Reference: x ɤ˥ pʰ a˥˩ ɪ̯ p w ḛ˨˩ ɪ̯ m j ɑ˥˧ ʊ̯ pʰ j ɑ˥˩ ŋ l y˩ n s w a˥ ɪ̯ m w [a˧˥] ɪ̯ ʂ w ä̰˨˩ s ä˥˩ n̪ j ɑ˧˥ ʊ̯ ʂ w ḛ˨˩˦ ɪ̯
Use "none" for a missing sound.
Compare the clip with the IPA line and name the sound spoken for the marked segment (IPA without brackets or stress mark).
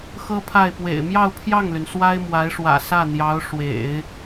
a˧˥